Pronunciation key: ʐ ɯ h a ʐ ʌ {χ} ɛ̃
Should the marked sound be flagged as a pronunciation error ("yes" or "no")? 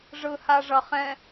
no